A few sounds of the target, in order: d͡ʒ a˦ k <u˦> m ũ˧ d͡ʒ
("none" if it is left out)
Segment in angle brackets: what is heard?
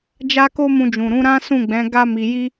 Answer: o˦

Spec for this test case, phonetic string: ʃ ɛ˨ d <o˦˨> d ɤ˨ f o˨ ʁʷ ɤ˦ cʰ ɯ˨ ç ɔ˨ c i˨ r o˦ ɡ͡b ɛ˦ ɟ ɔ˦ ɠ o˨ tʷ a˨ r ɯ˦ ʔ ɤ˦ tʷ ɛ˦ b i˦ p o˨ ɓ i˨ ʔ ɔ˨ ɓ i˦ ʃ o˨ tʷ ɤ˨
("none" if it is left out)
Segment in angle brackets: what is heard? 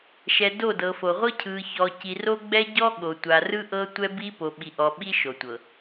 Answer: o˦˨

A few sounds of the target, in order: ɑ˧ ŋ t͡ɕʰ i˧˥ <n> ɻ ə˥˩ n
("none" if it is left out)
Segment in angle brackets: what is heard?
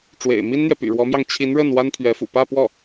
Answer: n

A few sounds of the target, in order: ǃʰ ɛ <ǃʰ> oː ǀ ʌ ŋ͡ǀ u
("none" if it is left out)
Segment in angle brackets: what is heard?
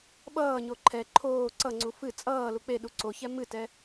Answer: ǃʰ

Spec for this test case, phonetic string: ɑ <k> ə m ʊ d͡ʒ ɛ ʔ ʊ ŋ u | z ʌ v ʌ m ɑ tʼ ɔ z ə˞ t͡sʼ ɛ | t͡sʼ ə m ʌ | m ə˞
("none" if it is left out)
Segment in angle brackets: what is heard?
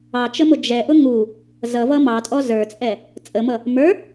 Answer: t͡ʃ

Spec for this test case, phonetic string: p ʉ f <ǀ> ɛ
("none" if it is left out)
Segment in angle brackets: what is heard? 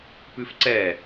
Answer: ǀ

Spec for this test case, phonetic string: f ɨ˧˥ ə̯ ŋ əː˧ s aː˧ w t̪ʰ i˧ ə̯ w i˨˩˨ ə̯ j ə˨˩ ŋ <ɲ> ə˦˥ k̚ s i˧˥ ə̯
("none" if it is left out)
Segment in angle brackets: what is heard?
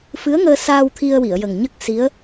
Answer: ɲ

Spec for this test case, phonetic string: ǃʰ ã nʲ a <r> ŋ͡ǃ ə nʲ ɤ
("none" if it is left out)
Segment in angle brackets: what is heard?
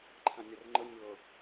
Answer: r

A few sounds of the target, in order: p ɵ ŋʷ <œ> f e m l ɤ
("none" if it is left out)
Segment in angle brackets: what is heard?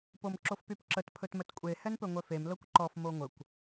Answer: œ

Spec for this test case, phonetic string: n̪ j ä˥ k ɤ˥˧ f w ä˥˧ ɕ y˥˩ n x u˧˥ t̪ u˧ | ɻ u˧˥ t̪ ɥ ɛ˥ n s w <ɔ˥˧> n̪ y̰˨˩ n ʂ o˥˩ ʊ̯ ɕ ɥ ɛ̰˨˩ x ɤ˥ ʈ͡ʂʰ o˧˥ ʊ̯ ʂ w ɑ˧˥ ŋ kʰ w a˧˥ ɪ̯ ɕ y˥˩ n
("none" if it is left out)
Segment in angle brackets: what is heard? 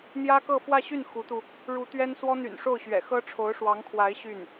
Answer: ɔ˥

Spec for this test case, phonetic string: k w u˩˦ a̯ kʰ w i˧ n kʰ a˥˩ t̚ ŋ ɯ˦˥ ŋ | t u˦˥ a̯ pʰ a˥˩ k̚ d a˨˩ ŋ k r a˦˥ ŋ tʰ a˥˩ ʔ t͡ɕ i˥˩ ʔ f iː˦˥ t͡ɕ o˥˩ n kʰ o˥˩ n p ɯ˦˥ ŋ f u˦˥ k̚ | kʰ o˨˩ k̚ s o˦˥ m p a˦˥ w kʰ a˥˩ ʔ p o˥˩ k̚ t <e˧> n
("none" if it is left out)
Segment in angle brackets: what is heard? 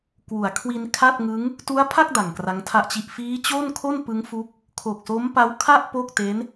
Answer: e˦˥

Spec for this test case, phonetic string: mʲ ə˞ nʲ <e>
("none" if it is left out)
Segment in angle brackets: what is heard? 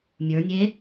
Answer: e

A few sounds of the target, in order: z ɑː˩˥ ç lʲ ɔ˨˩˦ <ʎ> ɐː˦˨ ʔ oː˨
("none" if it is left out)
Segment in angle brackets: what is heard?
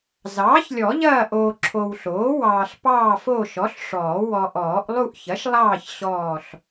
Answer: ʎ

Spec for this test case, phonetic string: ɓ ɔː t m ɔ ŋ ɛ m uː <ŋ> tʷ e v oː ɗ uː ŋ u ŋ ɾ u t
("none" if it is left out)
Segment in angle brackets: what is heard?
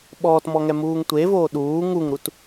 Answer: ŋ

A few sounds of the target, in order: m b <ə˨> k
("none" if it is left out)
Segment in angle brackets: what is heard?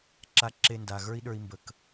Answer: ə˨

